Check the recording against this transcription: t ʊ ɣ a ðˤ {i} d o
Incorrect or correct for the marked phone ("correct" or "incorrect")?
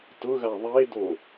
incorrect